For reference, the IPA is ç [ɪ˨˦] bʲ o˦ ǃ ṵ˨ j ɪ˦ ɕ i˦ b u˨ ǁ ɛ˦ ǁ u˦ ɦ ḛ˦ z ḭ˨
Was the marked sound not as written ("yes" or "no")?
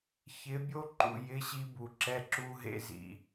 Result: no